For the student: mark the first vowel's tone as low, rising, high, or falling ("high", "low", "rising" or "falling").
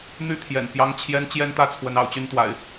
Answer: falling